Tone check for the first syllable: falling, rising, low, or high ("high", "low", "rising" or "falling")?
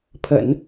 low